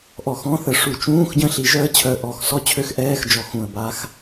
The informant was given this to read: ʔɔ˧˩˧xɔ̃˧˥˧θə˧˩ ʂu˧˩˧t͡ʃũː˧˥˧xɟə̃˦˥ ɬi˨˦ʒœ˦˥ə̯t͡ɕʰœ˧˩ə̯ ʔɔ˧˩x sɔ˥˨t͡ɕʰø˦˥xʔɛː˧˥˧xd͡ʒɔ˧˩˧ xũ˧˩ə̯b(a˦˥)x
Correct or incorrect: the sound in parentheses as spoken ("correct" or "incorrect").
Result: correct